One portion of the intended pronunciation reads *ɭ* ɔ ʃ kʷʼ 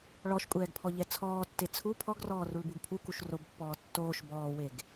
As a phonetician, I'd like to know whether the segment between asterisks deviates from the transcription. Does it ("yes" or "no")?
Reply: no